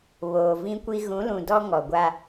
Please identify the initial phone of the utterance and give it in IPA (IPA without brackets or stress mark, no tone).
β